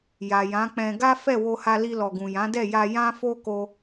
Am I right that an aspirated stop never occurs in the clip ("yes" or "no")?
yes